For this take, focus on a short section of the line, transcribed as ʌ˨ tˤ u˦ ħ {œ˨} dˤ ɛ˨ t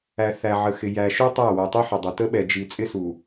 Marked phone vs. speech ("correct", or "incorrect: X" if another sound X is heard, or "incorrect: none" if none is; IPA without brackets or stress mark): incorrect: ə˨